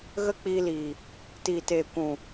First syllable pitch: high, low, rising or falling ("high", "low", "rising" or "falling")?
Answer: high